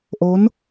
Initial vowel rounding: rounded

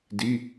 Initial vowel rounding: unrounded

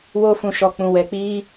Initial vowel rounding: rounded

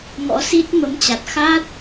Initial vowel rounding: rounded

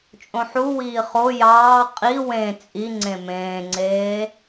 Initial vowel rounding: rounded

